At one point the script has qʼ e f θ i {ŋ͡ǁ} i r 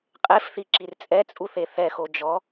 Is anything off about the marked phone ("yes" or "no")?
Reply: yes